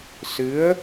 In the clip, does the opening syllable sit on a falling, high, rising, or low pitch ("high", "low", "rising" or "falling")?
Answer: rising